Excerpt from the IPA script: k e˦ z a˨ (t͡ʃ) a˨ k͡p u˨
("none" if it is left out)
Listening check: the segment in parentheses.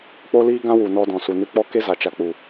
t͡ʃ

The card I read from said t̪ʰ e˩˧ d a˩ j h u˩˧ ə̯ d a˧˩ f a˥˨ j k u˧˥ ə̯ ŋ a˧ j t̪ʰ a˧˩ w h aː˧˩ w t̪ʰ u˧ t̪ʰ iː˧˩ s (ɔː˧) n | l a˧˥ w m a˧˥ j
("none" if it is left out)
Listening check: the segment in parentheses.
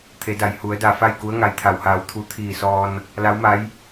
ɔː˧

